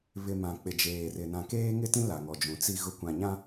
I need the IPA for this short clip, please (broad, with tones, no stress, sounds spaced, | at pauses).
β ɪ˨ m ã˨ k͡p ɪ˨ d͡ʒ eː˨ r ɪ˨ n ã˨ k eː˦ ŋ ɪ˦ t ĩ˦ l a˨ ŋ ɔ˨ d͡ʒ ũ˨ t͡s i˨ ɣ ʊ˨ kʷ ã˨ ɲ ã˦